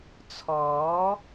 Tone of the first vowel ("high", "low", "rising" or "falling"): rising